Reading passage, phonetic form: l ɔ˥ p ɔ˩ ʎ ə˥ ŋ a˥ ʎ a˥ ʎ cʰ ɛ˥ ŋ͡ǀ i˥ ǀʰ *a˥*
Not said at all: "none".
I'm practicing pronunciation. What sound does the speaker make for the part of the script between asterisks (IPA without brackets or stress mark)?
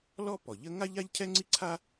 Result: a˥